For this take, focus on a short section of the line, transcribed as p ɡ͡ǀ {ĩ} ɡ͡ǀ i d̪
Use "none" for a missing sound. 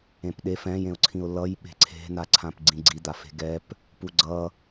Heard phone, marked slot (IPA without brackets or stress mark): ĩ